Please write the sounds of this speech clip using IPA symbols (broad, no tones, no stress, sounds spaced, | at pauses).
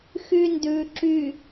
x y n d ʉ ǁ y